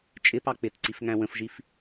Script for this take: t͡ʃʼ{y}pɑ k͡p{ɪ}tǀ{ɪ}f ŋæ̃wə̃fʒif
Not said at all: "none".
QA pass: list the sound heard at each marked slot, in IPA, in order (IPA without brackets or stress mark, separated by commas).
ɪ, ɪ, i